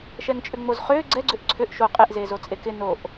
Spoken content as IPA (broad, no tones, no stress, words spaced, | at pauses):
ʃɛŋt͡ʃʼʏŋ͡mozχʏː ɡ͡ǀɛɡ͡ǀʏʔ ǀʰʏʔ ʃo qʼeʔzeːzot͡sʼe kɪ noʔ